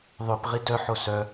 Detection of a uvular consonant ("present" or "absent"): present